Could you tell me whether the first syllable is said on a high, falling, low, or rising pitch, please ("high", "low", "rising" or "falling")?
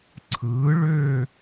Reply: rising